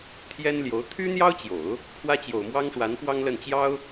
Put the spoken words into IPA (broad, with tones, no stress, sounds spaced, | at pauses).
t̪ʰ j ɛ˥ n l j o˧˥ ʊ̯ t̪ʰ y˥ n̪ j ɑ˥ ʊ̯ t͡ɕ j o˨˩˦ ʊ̯ | kʰ w ä˥ t͡ɕ j o˨˩ ʊ̯ m w ɑ˥ ŋ ʂ w a˧˥ n p w ɑ˥ ŋ l ə˥˩ n t͡ɕ j ɑ˥ ʊ̯